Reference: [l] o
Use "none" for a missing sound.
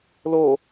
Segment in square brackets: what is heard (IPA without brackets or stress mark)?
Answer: l